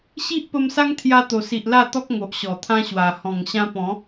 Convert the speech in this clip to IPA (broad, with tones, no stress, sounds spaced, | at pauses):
ɕ i˦ ʔ p ə˧ m s a˦ ŋ t̪ʰ j a˧ t̪ o˨˩ s i˨ ʔ l a˥˧ t̪ ɔ˦ k̚ ŋ o˨ ʔ ɕ ɔ˨˩ t̪ʰ ã˦ ɕ w a˨˩ h ɔ̃˨˩ ŋ ɕ ã˧ p ɔ̃˨˦